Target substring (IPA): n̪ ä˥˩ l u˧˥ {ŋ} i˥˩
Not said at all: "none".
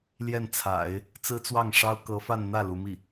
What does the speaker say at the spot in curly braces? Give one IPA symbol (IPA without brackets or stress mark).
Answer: m